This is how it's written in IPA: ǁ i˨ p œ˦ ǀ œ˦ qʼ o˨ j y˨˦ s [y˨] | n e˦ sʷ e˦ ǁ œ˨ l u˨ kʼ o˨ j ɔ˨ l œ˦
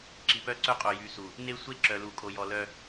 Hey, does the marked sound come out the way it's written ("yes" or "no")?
no